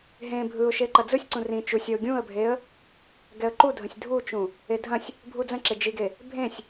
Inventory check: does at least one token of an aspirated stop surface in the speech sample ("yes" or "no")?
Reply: no